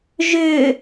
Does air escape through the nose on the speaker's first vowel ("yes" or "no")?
no